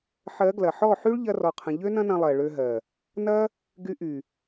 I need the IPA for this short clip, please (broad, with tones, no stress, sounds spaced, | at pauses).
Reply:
ħ ɜ˨˦ ɡ l ɐ˨ ħ ɔ˦˨ ħ y˦ ɭ ʎ ɐ˦ r ɔ˧ qʰ ə̃˧ ʎ ø˦ n ɐ̃˦ n ɐ̃˧ lˠ ɜ˨ ɭ ø˧ ɦ ɜ˨ | n ɐ˦ | ɡ y˧ ʔ y˨